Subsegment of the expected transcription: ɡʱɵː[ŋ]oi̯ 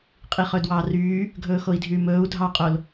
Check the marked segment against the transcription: incorrect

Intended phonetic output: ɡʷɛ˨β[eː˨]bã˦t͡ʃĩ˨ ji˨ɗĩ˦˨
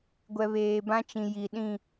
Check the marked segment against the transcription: correct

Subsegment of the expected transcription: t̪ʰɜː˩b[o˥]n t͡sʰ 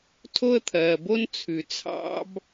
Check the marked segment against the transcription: correct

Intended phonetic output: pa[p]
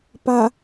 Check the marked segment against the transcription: incorrect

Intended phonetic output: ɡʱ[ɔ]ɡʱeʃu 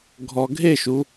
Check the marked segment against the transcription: correct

